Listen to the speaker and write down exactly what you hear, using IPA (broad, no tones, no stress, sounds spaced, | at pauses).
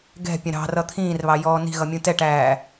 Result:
ɡ ɛ̤ pʲ ə̃ ɾ ɑ̤ r ʌ t̪ʰ ĩː r β ɑ j ɔː n i̤ ɣ ʌ mʲ ũ t ɛ ʈ æː